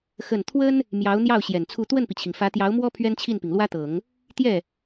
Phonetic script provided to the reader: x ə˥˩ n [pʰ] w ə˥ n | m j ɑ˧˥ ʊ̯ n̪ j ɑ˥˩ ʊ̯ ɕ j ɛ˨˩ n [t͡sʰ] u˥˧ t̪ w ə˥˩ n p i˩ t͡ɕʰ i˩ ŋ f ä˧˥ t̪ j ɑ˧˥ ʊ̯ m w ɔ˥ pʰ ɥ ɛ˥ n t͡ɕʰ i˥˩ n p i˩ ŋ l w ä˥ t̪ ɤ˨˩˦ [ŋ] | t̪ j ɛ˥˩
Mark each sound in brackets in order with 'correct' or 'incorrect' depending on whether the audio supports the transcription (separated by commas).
incorrect, correct, correct